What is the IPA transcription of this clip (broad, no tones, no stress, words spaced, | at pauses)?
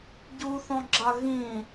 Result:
ɟuθɔ̃ɡ͡ǁa ɣĩ